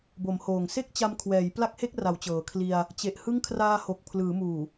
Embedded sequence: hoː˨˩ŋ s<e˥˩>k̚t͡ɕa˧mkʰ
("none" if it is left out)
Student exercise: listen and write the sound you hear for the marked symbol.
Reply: e˥˩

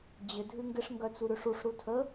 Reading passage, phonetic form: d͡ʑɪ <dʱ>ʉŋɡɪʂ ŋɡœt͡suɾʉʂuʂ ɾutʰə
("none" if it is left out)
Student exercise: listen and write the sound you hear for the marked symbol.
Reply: dʱ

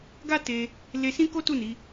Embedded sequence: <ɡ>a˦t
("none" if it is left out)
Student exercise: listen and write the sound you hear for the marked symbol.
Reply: ɡ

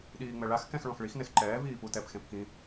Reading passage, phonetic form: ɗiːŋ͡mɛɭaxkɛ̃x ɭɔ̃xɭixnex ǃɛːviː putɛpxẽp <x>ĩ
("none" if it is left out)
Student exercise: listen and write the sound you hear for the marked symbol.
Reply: k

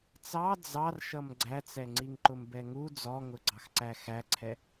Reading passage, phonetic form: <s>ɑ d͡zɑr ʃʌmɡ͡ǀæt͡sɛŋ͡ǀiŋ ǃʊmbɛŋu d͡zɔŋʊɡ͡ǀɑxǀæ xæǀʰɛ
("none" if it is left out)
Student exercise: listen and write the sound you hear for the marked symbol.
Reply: t͡s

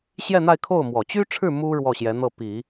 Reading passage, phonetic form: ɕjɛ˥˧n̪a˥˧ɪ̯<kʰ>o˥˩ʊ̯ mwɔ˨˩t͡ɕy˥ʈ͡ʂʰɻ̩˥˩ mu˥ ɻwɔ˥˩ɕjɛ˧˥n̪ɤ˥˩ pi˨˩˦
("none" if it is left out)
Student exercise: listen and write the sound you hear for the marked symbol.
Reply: kʰ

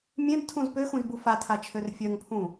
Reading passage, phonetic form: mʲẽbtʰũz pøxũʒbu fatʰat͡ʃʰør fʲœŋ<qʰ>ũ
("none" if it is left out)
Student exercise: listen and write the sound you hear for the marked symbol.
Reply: pʰ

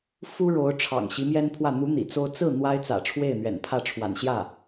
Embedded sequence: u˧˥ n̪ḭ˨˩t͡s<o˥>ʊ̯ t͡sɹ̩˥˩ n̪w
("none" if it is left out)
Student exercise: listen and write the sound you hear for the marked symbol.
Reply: o˥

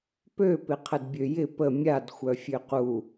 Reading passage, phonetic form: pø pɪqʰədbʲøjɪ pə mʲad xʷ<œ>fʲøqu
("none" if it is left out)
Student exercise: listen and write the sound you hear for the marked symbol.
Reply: œ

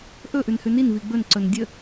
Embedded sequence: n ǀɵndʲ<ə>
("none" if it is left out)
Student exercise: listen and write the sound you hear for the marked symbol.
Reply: ə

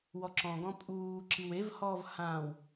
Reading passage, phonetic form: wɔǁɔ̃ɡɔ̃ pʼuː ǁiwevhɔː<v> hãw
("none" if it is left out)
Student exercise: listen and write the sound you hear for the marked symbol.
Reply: v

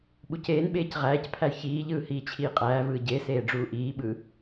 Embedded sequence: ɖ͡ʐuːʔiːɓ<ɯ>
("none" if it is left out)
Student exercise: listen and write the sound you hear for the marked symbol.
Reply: ɯ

